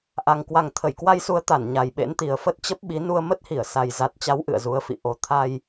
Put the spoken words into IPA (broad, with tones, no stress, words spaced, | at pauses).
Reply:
ʔa˨˩ŋ kwa˨˩ŋt̪ʰə˧˩jkwa˧jsu˨˦ə̯ t̪a˧˩n ɲa˨˩jɓḛ˧˥nt̪i˨˩ə̯ fə˦˥t̚t͡ɕə˦˥p̚ɓi˨˦ nu˧ə̯mə˦˥t̚hi˧˩ə̯ sa˨˩jza˨˩t̚t͡ɕa˨˦w ʔɨ̰˧˨ə̯zu˨˦ə̯fḭ˧˨ ʔo˨˩t̪ʰa˧j